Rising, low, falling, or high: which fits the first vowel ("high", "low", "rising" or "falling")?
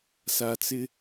low